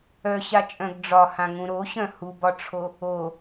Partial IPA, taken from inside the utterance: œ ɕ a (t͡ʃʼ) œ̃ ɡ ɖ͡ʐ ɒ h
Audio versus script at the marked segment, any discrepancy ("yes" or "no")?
no